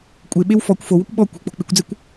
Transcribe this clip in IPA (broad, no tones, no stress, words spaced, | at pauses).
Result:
kʷʼeɓew fɔkʷ fowokʷ ɓɔ kʷe̤k͡po̤ k͡pɪkʷd͡zekʷ